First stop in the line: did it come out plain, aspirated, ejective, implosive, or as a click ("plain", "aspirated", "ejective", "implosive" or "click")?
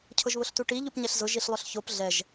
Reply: aspirated